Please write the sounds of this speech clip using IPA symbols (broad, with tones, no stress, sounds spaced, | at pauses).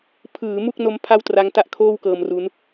pʰ ɯː˩˦ m u˥˩ k̚ n o˦˥ m pʰ a˥˩ w t r a˦˥ ŋ t a˥˩ ʔ kʰ oː˥˩ w k ɤː˧ m r u˦˥ n